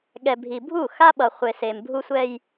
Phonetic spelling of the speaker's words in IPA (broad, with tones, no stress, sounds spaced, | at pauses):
ɠ ɛ˨ bʱ i˨ bʱ u˦˨ x a˦ ɓ ʌ˨ χʷ e˨ s e˨ m bʱ u˦ sʷ ɛ˦ j